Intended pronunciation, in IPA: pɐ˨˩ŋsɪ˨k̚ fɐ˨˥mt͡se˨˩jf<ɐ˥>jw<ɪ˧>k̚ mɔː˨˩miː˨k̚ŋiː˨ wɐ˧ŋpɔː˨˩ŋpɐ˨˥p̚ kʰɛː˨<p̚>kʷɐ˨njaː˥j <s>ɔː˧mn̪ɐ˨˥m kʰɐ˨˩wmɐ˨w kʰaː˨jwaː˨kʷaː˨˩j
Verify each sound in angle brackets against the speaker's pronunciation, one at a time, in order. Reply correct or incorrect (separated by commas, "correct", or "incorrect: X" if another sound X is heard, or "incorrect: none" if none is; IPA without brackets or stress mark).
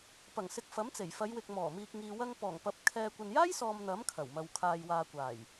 incorrect: ɐ˨˧, incorrect: ɪ˨, incorrect: none, correct